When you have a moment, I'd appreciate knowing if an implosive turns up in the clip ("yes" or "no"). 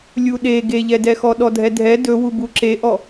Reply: yes